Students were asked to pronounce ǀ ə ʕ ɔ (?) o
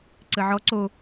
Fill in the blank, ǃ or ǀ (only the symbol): ǀ